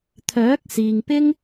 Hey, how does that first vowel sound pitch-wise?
rising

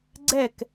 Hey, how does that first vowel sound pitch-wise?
falling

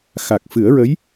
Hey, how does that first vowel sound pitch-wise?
low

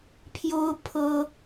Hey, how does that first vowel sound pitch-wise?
high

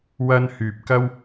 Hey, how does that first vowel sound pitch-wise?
high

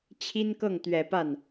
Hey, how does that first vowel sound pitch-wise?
high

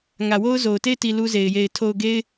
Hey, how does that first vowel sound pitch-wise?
low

